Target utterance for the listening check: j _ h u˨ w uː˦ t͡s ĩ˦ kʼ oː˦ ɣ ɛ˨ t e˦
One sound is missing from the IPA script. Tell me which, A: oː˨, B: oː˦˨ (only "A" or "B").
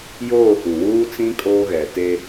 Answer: B